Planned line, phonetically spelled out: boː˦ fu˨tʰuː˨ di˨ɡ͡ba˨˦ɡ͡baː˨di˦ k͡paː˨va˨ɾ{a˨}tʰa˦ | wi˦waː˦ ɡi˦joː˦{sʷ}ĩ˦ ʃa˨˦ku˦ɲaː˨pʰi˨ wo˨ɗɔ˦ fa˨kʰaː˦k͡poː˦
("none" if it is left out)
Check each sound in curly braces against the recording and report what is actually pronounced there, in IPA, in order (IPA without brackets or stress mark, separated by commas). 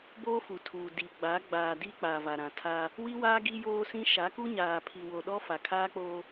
ã˨, s